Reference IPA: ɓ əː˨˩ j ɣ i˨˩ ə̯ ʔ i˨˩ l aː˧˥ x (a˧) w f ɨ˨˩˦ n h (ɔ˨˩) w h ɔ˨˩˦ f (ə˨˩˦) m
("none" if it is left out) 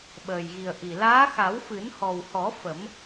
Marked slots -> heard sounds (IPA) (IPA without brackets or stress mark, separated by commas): a˨˩˦, ɔ˨˩, ə˨˩˦